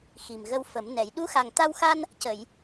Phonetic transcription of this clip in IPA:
xi˨˩mɣə˧wfə˨˩˦mnɛ˨˩˦j ɗu˧˥xa˨˩ŋ t̪a˧wxa˧n | cə˨˩˨j

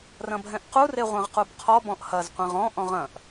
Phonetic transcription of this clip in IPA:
rɐ̃bʱɛ̃ʔqu reʁʷɛ̃ʁqubqʰɔ bɔ̃ʔhɐz qʷẽʁɔ̃ ʔɔ̃ʁɐ̃ʔ

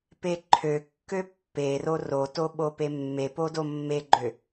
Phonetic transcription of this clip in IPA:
peǃʰøkːø pːero roto ɓopemːepo domːeɡ͡ǃø

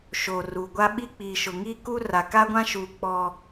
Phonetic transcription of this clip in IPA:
ʃoː˨ruː˨ ɡʷa˦ɓi˦ k͡piː˨ʃʊ˨ŋiː˦ ku˦ra˨ ka˦ɡʷã˦ʃuː˨ k͡pɔ˦

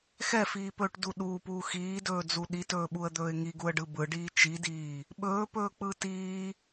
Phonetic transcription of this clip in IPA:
xɛfiːpɵːʈdu ɗuːpuː xiːdɵːd͡zu ɗitɵːɓuə̯d̪ɵːɪ̯ ŋiɡuə̯ɖɯ bɯɖiː t͡ʃidiː | ɓɵːpɵːk͡pɯ tiː

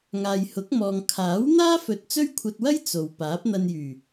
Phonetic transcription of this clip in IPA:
ŋaː˨jhʊ˨˥k̚mɔː˨ŋ kʰaː˨˥wn̪aː˥fɵ˨t̚ t͡sɵ˥ɥkʷʰɐ˧t̚wɐ˥j t͡so˨w paː˨˥p̚n̪ɐ˧njyː˨˩

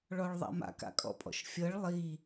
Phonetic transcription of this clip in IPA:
ɭɔɭðˤa̰ma̰ ka̰kʼɔ̰pʼɔ̰ʃfʲɤɭ lˠi

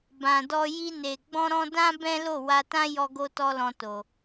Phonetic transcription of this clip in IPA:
bã˨dɔ˧ ji˧ne˨ ɡ͡bɔ̃˧ɾɔ̃˧dã˦ bɛ̃˦lo˦˨ wa˧tã˦ jɔ˧ ɡo˦tɔ˦lɔ̃˧to˨

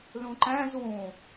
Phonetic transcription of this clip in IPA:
lũǃæ̃z wũ

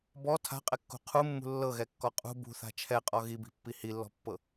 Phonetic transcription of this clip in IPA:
bɔ tʰa̤qʼɛkːṳ qʰumːṳ lːɤɣɛkːɔ qʼṳ bṳθa̤ t͡ʃʰɛqʼɔ ɣibi̤pːi hilːɔ̤pːɤ

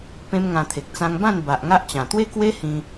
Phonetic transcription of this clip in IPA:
pẽ˦mŋã˧t̪ʰe˨k̚ t͡sã˧ŋbã˥˧n ba˨ʔŋa˦ʔt͡ɕã˨˩ t̪we˦kwe˦ hĩ˧

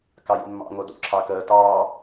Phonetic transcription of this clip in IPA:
kɑjḭmːɑ̰ ŋodo̰ ǁʰɑkəː tɑː

